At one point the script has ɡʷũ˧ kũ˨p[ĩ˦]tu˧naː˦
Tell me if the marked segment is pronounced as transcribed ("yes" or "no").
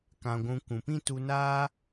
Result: yes